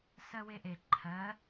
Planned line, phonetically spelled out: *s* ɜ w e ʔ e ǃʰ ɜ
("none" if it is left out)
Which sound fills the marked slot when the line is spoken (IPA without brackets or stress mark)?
s